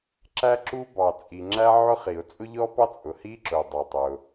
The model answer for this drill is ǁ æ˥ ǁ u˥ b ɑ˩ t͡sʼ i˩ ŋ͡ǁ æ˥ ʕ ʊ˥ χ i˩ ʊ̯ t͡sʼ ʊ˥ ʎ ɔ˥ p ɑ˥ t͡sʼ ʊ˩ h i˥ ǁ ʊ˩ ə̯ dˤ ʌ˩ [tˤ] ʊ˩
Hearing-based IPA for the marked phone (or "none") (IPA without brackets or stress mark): tˤ